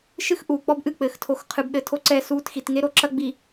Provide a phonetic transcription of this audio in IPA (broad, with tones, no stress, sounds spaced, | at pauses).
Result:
ʃ ɨ˦ x ʔ uː˨ k͡p ɔ˦ b ʔ ɨ˦˨ k͡p ɘː˨ x tʰ o˨˦ x qʰ ɨ˨ b ɗ ɘ˨ tʰ o˦ ǀ ɛ˦˨ s uː˦ t x i˨ t ŋ e˦ ɾ o˨ ǁ ɐ˦ ɡ͡b i˨